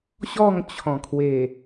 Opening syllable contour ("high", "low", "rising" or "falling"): falling